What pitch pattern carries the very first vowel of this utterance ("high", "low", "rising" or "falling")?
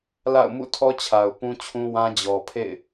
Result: falling